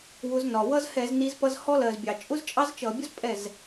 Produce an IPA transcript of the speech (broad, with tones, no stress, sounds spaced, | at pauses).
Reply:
w ʊ˨˦ z n ɒ˩ w ʌ˥ z h ɛ˧˩˧ z n i˨˦ z p ʌ˥ z h ɔ˥ l ɜ˩ z bʲ ɑ˩ t͡ʃʼ ʊ˥ z t͡ʃʼ ɑ˥ z t͡ʃ ʌ˧˩˧ bʲ ʊ˥ z pʼ ɛ˥˩ z